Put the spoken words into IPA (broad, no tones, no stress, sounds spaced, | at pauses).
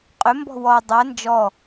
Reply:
qʼ ʏ m b ɔ̤ w ɔ dˤ ɛ n d͡ʒ ɔ